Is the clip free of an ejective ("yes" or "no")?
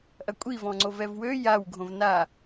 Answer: no